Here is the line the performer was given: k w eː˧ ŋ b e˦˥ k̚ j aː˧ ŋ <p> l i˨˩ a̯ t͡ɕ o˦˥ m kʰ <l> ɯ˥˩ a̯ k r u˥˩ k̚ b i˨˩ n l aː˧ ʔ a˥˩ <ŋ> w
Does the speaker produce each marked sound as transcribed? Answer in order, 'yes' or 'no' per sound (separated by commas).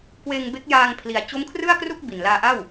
no, no, no